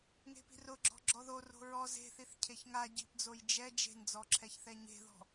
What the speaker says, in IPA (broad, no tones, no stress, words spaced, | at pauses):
ŋe̤pi̤rʊ ɡ͡ǁɔ̤ɡ͡ǁɔðo ro̤ɹɔ ze̤θiθ cʰeçŋa ɟi̤pd͡zoj d͡ʒɛ d͡ʒe̤nd͡zɔǁʰɛçθɛ ɲe̤ðɔ̤